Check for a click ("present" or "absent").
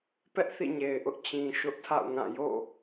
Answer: absent